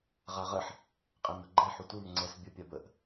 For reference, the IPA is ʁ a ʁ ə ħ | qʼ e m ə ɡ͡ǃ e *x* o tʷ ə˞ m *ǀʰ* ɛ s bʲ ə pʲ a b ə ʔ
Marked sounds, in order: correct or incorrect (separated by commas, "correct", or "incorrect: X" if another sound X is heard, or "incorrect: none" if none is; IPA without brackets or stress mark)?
incorrect: ħ, incorrect: ŋ͡ǀ